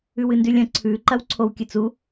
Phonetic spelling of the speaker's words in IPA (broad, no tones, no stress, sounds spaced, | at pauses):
ʉ w ɨ n d ʉ lʲ ɐ̃ ǀʰ ʉ ǃ ɐ w ǀʰ o w kʲ ɨ t͡s u